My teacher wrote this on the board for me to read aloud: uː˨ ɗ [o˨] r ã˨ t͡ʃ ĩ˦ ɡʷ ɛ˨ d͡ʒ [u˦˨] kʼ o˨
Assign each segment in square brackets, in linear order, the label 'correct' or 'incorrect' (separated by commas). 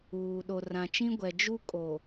correct, incorrect